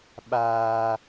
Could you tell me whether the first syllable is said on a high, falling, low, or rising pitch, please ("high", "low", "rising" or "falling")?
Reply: high